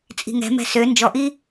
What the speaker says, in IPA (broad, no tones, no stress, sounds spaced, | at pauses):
t͡sʼ i̤ ŋ ɛ̤ m ɛ̤ s ø n d͡ʒ ɔ ʔ i